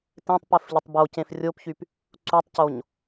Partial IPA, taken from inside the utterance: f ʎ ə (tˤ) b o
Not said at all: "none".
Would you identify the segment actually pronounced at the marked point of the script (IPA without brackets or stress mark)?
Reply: tˤ